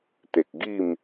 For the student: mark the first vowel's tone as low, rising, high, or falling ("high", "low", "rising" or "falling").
low